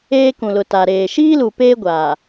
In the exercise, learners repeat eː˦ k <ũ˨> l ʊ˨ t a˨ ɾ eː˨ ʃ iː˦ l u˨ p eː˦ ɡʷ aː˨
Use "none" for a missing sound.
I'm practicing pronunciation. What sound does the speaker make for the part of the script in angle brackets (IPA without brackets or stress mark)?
ũ˨